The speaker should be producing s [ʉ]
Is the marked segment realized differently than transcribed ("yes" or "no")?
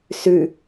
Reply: no